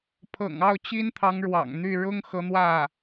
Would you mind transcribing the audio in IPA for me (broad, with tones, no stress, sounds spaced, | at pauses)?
pʰ ɤ̰˨˩ ŋ ɑ˥˩ ʊ̯ t͡ɕ i˥ n t̪ʰ ɑ˧˥ ŋ ɻ w ɑ̰˨˩ ŋ n̪ y˥˩ ɻ ʊ˥ ŋ x ɤ˧˥ n̪ w ä˥˩